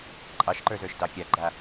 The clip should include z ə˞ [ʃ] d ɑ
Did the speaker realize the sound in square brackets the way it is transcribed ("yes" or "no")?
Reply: yes